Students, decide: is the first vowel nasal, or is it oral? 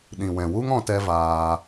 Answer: nasal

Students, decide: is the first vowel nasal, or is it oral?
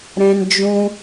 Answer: nasal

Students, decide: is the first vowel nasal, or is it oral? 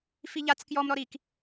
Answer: oral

